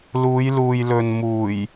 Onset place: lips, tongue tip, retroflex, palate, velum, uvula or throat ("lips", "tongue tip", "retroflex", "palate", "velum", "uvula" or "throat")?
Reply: tongue tip